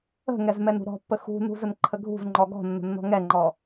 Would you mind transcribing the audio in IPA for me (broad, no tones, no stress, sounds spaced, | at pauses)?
ə̤ ŋ ɛ z m ɛ n ṳ ɾ ɔ̤ pː ə x ṳ n ṳ z ə n ǃʰ ə ɡʱ ṳ z ŋ͡ǃ ɔ ɡ ɔ̤ nː ə̤ nː ɔ̤ ŋ ɛ ŋ͡ǃ ɔ